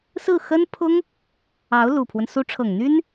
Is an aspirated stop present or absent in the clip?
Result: present